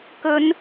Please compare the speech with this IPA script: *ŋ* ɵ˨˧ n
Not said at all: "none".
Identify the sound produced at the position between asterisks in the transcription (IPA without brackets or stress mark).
k